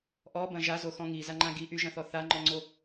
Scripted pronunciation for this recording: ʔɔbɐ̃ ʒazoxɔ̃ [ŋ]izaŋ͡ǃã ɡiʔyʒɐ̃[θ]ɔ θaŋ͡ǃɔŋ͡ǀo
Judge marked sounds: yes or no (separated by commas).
yes, yes